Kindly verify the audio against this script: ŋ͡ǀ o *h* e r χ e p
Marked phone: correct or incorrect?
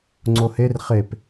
correct